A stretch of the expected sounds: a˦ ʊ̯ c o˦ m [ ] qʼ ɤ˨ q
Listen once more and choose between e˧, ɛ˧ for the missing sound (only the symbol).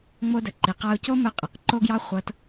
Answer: ɛ˧